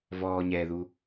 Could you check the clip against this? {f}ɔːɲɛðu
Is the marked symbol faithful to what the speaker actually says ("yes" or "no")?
no